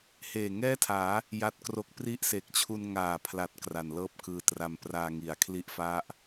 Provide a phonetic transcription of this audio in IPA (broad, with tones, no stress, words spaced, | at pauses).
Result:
heː˨˩ŋɛː˥˩tʰaː˩˦ | ja˦˥t̚kro˦˥k̚ pri˥˩ʔ se˨˩k̚t͡ɕʰu˧nŋaː˨˩pʰla˨˩t̚ kra˨˩nlɤː˥˩p̚kɯː˧tra˧m praː˧ŋi˩˦a̯ kʰli˦˥ʔfa˦˥ʔ